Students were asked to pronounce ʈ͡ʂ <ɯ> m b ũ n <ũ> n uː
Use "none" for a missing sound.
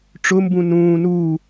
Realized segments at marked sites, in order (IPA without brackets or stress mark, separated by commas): ʊ, ũː